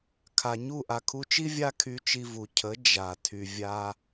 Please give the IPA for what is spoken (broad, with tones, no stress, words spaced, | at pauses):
kʰa˨ɲu˦˨ ʔa˨kʰu˧t͡ʃi˦ vʲa˦kʰy˧t͡ʃi˧vu˨ cʰə˨˦ d͡ʒa˨ tʰy˨ vʲa˧